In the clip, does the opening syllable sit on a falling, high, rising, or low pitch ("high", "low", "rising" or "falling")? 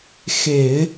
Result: low